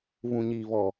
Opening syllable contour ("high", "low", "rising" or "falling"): low